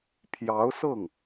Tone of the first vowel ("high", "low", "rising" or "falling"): rising